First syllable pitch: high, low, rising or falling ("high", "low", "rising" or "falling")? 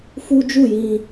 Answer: high